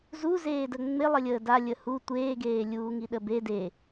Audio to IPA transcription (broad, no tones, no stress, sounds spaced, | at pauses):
z u z eː d ə ŋ͡m ɪ lˠ ə lʲ əː d a lʲ ə h u tʷ eː ɡ eː lʲ uː ŋ i ɗ ə b e d e